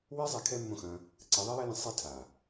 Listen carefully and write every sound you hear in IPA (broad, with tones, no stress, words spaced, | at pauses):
we˦ zˤɛ˧ kʰɛ˦mːõ˦˨xɐ̃˧ | ǀe˨˦ðˤe˦jɛ˦lẽ˧ sˤe˧ tʰa˨